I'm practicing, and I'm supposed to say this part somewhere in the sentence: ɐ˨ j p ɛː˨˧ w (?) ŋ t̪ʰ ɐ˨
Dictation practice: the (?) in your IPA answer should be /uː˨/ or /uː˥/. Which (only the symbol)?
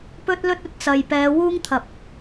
uː˥